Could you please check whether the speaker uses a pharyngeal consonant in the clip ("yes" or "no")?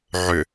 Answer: yes